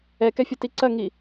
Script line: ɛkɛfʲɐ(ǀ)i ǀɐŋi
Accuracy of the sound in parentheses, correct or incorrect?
incorrect